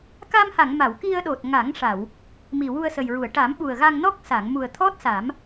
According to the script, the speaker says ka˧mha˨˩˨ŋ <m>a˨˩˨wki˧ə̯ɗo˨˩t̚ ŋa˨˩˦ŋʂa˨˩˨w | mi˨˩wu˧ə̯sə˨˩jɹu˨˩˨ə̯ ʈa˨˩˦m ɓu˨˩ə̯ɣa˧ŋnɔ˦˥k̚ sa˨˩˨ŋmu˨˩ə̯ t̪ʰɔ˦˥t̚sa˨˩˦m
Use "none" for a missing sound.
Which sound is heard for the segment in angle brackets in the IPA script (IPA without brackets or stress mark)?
m